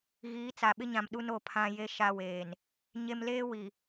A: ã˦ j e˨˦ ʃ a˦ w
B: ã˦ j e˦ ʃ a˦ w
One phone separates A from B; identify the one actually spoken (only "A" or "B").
B